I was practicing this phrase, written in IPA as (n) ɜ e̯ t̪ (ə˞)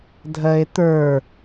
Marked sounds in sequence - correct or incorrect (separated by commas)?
incorrect, correct